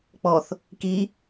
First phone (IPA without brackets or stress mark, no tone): k͡p